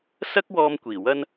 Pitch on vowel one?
high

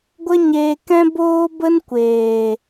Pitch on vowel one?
high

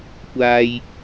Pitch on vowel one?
low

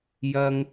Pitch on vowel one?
high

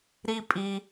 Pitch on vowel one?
high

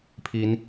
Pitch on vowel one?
rising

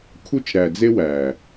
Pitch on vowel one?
high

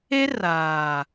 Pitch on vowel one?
high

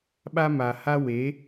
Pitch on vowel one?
high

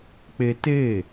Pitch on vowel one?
high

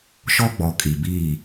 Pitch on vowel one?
high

